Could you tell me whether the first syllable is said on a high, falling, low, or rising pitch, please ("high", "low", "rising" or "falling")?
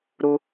high